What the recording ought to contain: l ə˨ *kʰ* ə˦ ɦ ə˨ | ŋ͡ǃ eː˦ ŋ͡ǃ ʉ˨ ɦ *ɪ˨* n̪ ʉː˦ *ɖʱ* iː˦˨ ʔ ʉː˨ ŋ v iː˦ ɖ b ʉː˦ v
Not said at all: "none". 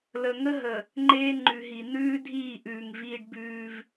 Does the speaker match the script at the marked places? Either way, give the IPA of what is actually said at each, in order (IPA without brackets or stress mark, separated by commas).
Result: ŋ, i˨, dʱ